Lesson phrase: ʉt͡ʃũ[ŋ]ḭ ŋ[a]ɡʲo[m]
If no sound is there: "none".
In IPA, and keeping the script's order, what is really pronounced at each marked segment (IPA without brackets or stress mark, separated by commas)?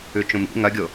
m, ɐ, none